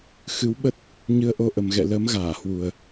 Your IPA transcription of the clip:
xɨ˨˦wɓə˦˥t̚ | ɲɨ˧ə̯ʔo˧ʔə˨˩mɣɛ̰˧˨ lə˨˦m ɣaː˧˩hwu˨˩ə̯

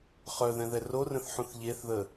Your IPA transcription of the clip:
χœðɛ̃ðɛ rorə̃θħũθ ʎeθðə

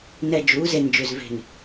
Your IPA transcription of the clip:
nɛ˨ d͡ʒuː˨˦ze˨nd͡ʒʏ˨z ve̤˨n

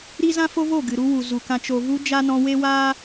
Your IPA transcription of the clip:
ɾi˦ zã˦fo˦vo˦˨ ɡɨ˨ɾu˧ wu˨zu˨kã˧ t͡ʃo˨vu˧ d͡ʒa˦nɔ̃˧ we˦waː˦

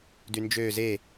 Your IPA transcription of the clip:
dynd͡ʒø ze

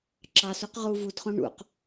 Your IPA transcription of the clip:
ǁɑsuq ʁu vudχõ ɳṵq

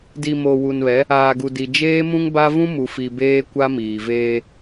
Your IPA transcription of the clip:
di˨mo˨ wu˨nβɛ˨˦ | aː˨ɡu˨di˨ d͡ʒeː˦mũ˦ŋba˦ vũ˦mu˨fi˨ beː˦kʷa˦miː˨veː˦

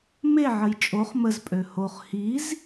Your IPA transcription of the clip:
meʕəj t͡ʃʼoχ məzpʼø hoχ hiz

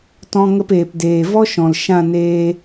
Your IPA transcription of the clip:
tɔ̃˧ ŋə˧peː˨pdeː˨ vɔ˦ʃɔ̃˨l ʃã˦˨neː˧

